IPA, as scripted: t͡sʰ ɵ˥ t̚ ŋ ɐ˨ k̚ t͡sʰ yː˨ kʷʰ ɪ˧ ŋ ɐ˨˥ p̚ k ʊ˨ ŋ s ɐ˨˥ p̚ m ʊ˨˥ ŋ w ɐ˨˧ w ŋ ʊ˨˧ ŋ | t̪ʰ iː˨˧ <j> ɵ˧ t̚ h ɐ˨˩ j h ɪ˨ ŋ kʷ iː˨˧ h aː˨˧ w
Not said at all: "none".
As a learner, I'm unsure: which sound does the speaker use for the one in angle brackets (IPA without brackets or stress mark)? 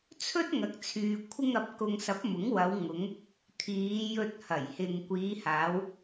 j